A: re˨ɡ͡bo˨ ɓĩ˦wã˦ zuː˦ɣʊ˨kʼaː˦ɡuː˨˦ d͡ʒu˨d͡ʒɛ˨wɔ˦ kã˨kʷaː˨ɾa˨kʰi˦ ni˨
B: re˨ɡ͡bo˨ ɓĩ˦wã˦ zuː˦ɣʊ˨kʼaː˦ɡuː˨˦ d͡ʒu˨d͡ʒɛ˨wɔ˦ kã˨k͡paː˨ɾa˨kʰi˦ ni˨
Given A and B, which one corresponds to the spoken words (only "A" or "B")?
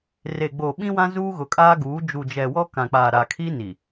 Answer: B